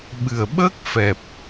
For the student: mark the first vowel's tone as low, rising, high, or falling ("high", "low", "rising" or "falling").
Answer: low